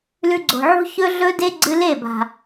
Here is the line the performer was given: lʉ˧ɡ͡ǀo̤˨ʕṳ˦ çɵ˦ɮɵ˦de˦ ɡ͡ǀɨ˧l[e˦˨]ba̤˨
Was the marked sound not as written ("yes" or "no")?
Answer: no